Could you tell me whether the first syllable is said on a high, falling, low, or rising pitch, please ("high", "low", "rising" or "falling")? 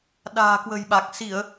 low